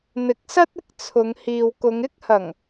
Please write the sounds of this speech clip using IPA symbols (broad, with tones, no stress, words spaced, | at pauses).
n̪ɪ˨˥k̚sɐ˥t̚ɪ˥k̚t͡sʰʊ˨˧ŋ hiː˨wkʊ˨˧ŋɪ˥k̚hɐ˨˩ŋ